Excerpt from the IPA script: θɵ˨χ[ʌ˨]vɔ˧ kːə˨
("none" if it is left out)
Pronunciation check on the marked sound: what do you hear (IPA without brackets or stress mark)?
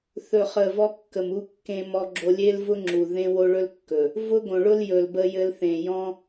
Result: ə˨